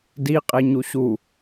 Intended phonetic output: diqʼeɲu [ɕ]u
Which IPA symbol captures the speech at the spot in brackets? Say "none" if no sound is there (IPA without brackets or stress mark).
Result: ɕ